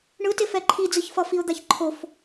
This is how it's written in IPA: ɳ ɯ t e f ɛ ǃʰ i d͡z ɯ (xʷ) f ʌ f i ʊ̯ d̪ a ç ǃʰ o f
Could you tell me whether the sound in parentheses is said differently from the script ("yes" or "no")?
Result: yes